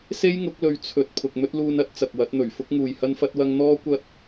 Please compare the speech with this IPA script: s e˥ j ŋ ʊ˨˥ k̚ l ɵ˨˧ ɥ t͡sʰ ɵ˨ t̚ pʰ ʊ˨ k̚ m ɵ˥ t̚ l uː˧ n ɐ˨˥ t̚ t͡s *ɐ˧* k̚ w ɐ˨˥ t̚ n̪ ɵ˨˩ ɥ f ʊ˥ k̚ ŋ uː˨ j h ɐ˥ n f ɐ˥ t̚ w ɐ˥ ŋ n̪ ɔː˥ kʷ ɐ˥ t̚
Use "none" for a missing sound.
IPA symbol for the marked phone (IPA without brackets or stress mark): ɐ˨